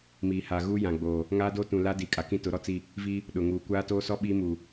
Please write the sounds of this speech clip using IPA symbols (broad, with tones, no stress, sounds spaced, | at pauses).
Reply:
m iː˨ h a˨ ɣ uː˦ j ã˨ ɡ͡b oː˨ | ŋ aː˦ d oː˦ t ũ˨ l a˦ d i˨ kʼ a˨ k ĩ˦ t ʊ˨˦ ɾ ɔ˦ t͡s i˦˨ | v iː˦ | ɗ ʊ˨ ŋ uː˨ kʷ aː˦ t oː˦ s ɔ˦ ɓ i˦ m uː˨